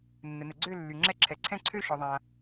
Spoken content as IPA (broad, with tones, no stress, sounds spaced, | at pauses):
nː ə˨ n ə˨ ɡ͡ǀ ø˥˧ lː y˨ ŋ͡ǁ ɛ˥˧ ǁʰ ɛ˨ ǀʰ ɛ̃˥˧ ǀʰ ø˥˧ ʃ ɔ˨ ðˤ ã˨